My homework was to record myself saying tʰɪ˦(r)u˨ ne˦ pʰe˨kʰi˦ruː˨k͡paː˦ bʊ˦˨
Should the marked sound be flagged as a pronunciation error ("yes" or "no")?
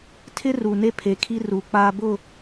no